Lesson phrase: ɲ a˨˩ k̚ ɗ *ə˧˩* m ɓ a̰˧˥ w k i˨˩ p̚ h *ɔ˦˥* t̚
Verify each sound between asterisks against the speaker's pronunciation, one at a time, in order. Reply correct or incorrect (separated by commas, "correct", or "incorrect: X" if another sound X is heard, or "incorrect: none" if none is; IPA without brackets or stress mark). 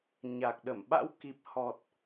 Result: correct, incorrect: ɔ˨˩